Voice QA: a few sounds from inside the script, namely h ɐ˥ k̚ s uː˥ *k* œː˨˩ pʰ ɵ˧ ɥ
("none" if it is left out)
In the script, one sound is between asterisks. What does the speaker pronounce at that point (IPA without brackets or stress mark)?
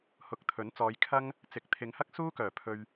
k